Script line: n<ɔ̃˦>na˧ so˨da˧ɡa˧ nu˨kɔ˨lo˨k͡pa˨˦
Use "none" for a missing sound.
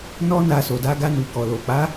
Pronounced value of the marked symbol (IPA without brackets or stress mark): ɔ˦